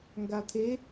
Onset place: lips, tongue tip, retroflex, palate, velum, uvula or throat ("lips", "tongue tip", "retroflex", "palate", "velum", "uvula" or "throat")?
velum